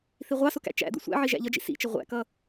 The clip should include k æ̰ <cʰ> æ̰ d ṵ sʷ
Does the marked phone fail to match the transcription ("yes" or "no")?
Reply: yes